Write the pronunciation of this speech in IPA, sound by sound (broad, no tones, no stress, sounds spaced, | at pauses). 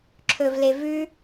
ǁʰ ɵ v l e v ʉ